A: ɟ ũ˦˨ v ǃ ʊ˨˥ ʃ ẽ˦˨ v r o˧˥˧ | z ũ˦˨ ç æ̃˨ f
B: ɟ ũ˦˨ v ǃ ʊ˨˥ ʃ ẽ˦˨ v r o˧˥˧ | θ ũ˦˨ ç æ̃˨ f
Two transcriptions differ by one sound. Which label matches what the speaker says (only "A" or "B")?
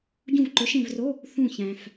B